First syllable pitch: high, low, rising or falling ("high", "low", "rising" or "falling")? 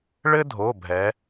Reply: high